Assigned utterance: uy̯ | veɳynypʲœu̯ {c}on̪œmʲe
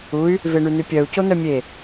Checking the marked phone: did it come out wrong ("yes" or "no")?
no